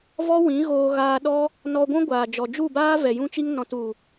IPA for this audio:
v ɔ˦ w ĩ˨˦ ɣ oː˧ ɣ aː˧ ɗ ɔ˦ | n ɔ˧ ɡʷ ũ˦ ɡʷ aː˨ d͡ʒ ɔ˨ d͡ʒ u˦˨ b aː˦ v ɛ˨ j ũ˦ t͡ʃ i˦ ŋ n ɔ̃˧ t u˨

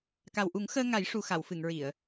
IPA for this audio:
k a˨˩ w ʔ u˨˩˦ ŋ x əː˧ ŋ a˨˩˦ j ʂ u˨˩ x a˨˩˨ w f ɨ˨˩˨ ŋ ɹ i˨˩˨ ə̯

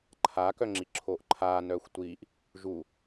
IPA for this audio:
ǃʰ a k œ ŋ͡ǁ i ǁʰ oː ʔ ǃʰ aː n œː xʷ tʷ iː ʔ | ʒ u

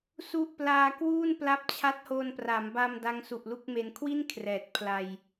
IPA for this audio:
s u˥˩ ʔ p l aː˧ k w uː˥˩ n p l a˦˥ p̚ t͡ɕʰ a˦˥ t̚ h o˧ n p r a˩˦ m b a˧ m d a˦˥ ŋ s u˨˩ ʔ l u˥˩ k̚ m e˧ n kʰ w i˥˩ n kʰ r ɛː˨˩ t̚ pʰ l a˧ j

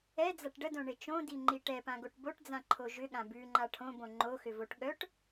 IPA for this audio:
ɛ d͡z a ʈ ɖ ə d õ ɳ e t͡ʃ õ d i ŋ͡ǃ i ʈ ɛ p ã ɡ o ʈ b o ʈ d͡z ã ǃʰ o ʒ ʏ ɠ ã b ʉ ŋ͡ǃ a ʈʰ õ b õ ŋ͡ǃ o x ʏ v o ʈ ɠ œ ʈ

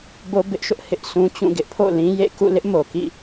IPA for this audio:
b o˦ b ɪ˦ ʔ ʃ ʊ˦ ʔ h ɪ˦ ʔ s ũ˦ t͡ɕ ũ˦˨ ɡ ɪ˦ ʔ pʰ o̰˦˨ l ĩ˦ j ḛ˦˨ k ṵ˦˨ l ɪ˦ ʔ m o˨ k ḭ˦˨

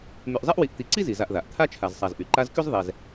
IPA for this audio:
m y˨ ʔ zˤ ɛ˥ ʔ w i˨ ʔ t̪ i˨ ǀ i˥ z i˩ z a˨ ʔ ð a˩ ʔ t̪ʰ a˥ t͡ʃʰ a˨ z sˤ a˨ z ʔ y˩ ǃ a˦ z k y˥ z ðˤ ɛ˨ z

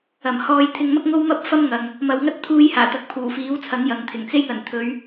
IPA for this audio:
ɐ˨˩ m h ɔː˧ j t̪ʰ ɪ˧ ŋ m ɐ˥ k̚ ŋ o˥ w m ɐ˥ p̚ f ɐ˥ m ŋ ɐ˨ ŋ | m ɐ˨ w ŋ ɐ˥ t̚ t̪ʰ uː˧ j h aː˨˩ t̪ ɐ˨˥ k̚ pʰ uː˨˩ f iː˨˥ w t͡sʰ ɐ˨˥ ŋ j ɐ˨ ŋ t̪ʰ ɪ˨˩ ŋ t͡s e˥ j ŋ ɐ˨˩ n t̪ʰ ɵ˨˧ ɥ

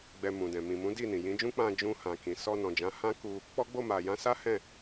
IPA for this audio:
ɡ͡b ɛ˧ m ũ˨ d ɛ̃˨ m ĩ˨ m ũ˨˦ d i˦˨ n ĩ˨ j ĩ˨˦ d͡ʒ ũ˦ k͡p ã˧ d͡ʒ ũ˧ h ã˨ k ĩ˨ s ɔ˧ n ɔ̃˨ d͡ʒ ã˨˦ h ã˦ k u˧ | k͡p ɔ˦ ɡ͡b o˦˨ m a˨ j ã˧ s a˦ h ɛ̃˦˨

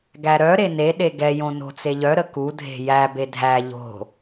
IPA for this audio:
ɡ æ ɾ œ ɾ e n e ɗ e ɡ ɛ j õ n o̤ t͡s e ʎ œ ɾ ə k u dʱ e̤ j æ b e dʱ æ ʎ o̤

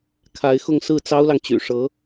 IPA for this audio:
kʰ a˧˥ ɪ̯ x ʊ˥˧ ŋ s ɹ̩˥˩ t͡s ɑ˥ ʊ̯ l ɑ˨ ŋ t͡ɕ y̰˨˩ ʂ ɤ˧˥

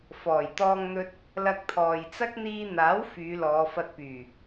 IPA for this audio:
f ɔː˨˩ j t̪ ɔː˧ ŋ n̪ ɵ˧ t̚ | l ɐ˧ k̚ t̪ʰ ɔː˨ j t͡s ɐ˥ k̚ n̪ iː˧ n̪ aː˨˥ w f yː˨˧ l ɔː˨˧ f ɐ˧ t̚ p yː˨˩

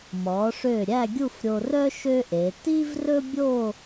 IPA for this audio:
m ɔ˩˧ ʂ ø˧˩ ɾʲ æ˥˧ ɡʲ u˥˧ f ɾʲ o˧ r œ˥ ʃ ø˥ ʔ e˩˧ t i˥ v r ɵ˥ bʲ o˥˧

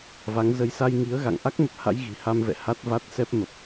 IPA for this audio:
v a˨˦ ŋ z ə˧ j s a˧ j ŋ i˨˦ ə̯ ɣ a̰˧˨ ŋ ʔ a˦˥ k̚ m ə˨˩ p̚ h a̰˧˥ j ɣ i̤˨˩ h a˧ m v ɛ̰˧˨ h a˦˥ t̚ v a˦˥ t̚ s ɛ˦˥ p̚ m ə˨˩ p̚

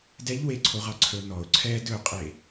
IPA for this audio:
d ɛ ʎ w e ǀʰ o ʁ ɑ ǀʰ ɵ n ɔ ʊ̯ ǀʰ ɛ d ɵ qʼ e

